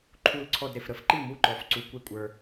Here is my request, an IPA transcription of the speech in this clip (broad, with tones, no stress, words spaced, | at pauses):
ǃʰu˥˧lǀʰɔ˥˧d ɾe˨fɾə˧˥˧fǃi˥˩mu˧˥˧ ǃɔ˧˥˧fǀu˧˥˧ kʷe˥˩kʷʼə˞˨